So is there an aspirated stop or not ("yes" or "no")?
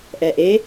no